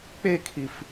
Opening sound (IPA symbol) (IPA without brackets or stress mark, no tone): k͡p